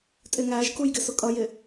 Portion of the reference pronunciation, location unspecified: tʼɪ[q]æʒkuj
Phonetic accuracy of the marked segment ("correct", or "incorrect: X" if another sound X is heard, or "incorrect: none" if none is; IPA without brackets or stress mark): incorrect: ŋ